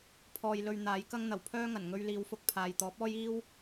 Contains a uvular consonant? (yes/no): no